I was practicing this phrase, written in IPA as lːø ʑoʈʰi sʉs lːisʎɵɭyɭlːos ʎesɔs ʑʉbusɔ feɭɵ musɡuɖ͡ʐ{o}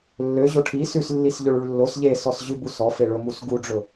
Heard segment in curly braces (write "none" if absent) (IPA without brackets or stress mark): ɵ